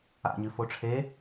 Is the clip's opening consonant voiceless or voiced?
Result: voiced